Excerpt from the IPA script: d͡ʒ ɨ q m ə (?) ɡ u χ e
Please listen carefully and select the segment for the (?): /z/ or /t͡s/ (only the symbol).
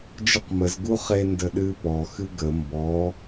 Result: z